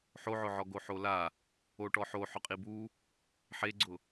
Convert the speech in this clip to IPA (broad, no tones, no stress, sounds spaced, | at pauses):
ħ o ʕ ʊ ʕ ɔ ɡ o ħ o l a | o ʈ ɔ ħ o ħ ʊ qʼ i b u | ħ e ɡ͡ǀ ʊ